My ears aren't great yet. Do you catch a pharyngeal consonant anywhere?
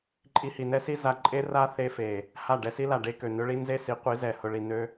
no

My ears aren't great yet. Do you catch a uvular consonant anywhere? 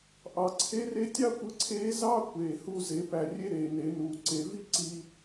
no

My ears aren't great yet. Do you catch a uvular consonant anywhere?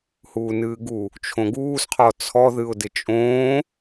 yes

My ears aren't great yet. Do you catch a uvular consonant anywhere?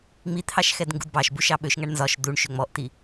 no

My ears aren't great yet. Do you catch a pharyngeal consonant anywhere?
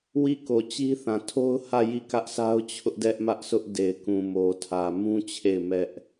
no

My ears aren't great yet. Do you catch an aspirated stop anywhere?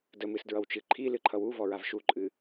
yes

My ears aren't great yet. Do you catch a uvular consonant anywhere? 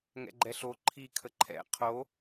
yes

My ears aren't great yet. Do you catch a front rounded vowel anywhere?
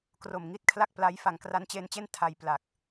no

